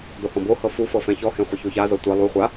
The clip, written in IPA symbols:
d o h ɔ̃ b o h ɤ f u f ɤ f ɛ̃ ç ɔ h ẽ χʷ e ç o ç a z ɤ tʷ ɛ lˠ u χʷ a

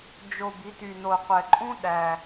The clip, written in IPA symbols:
d͡ʒ o˨˩ b i˩˧ t y˨˩ n o˨˩ qʷ ɛ˨˩ ǃʼ ũ˥ ɗ æ˨˩

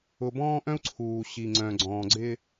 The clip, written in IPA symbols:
ʊ˨ b ɔ̃ː˦ ʔ œ̃˦ u̯ ǀʰ uː˨ ɕ i˨ ŋ͡ǀ œ̃˨ ɡ͡ǀ ɔ̃ː˨ ɡ͡ǀ ɪ˦

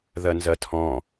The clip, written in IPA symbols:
ð ɐ n z ɐ tʰ ɔ̃

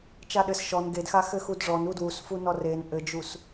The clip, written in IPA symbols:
t͡ʃ a ɗ ɘ s ʃ ɔ n ɡ e d x a x ɘ x u d ʐ ɔ n u d w u s f u n ɔ r e n ʔ ɘ d͡ʒ u s

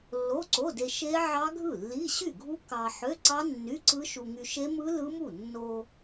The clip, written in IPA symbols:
lː o˧˥˧ ǀ o˧˥˧ d e˧ ʃ e˦˥ ʕ ɑ˦˥ ɡʱ ɯ˥˩ lː i˧˥˧ ɕ y˥˩ ɡʱ u˦˥ k ɑ˧ ħ ø˧˥˧ ǀ ɑ˦˥ nː y˧˥˧ ǀ ɯ˦˥ ʃ u˧ ŋ y˧ ʃ e˦˥ m ɯ˦˥ l ɯ˦˥ m u˥˩ nː o˧

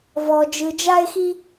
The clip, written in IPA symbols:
v ɔ˧ d͡ʒ ɯ˧ d͡ʒ a˥ e̯ x i˥

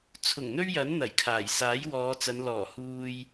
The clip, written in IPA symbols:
t͡sʰ ʊ˨˩ ŋ n̪ ɵ˥ ɥ j ɐ˨˥ n n̪ ɐ˨˩ j kʰ aː˨˩ j s aː˨˥ j w ɔː˨˧ t͡s ɐ˨˧ n l ɔː˨˩ h uː˧ j

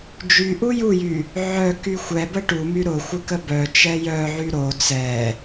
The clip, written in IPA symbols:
d͡ʒ y ʔ u j u j y | ʕ œ k y xʷ ɛ b ə ʈ u m y ɾ ʊ xʷ ɪ k ə b œ t͡ʃ ɛ j œ ʕ y ɾ o t͡s ɛ

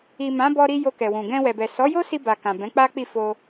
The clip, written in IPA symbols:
i˨ m ã˨˦ b ɔ˧ ɾ i˧ j o˧ k ɛ˨ w ũ˨ ɡ ɛ̃˧ w ɛ˨ b ɛ˨ s ɔ˨˦ j o˦ s i˧ b a˨ k ã˨ b ɛ̃˨˦ k͡p a˦ k͡p i˦˨ f o˧

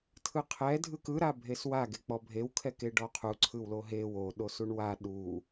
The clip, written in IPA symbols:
tʰ ɯ qʰ ɛ dʱ ɯ k ɯ ɾ a bʱ e s w a ɡ e k͡p ɔ bʱ e w kʰ ɛ k e ɖ ɔ qʰ u ǀʰ ɯ w l o ɦ e w o ɗ o s u ɳ w a ɗ u

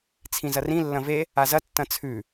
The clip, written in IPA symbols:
t͡sʰ ĩ z ɐ r ĩ lː ɐ̃ v e | a z ɐ tː ɐ̃ t͡sʰ ʉ

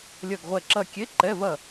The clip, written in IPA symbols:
lʲ ɐ˦˨ ɡ ʁʷ ɛ˦˨ ǁ ɐ˦˨ kʲ e˧˥˧ ǃ ɛ˧˥˧ v ɐ˦˨

